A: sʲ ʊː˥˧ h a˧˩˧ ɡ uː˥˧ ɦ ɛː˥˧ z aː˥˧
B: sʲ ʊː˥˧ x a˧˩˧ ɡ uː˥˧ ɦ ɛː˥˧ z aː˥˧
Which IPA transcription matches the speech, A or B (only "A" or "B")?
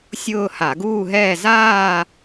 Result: A